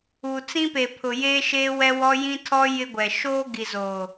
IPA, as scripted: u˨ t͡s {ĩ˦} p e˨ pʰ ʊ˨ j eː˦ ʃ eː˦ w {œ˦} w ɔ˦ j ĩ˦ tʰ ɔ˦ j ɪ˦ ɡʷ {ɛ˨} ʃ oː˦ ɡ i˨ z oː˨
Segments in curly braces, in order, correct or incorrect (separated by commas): correct, incorrect, correct